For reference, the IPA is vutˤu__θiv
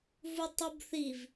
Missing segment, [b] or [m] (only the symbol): b